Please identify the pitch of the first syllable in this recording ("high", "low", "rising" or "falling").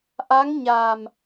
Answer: rising